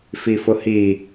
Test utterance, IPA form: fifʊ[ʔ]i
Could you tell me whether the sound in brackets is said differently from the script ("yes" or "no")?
yes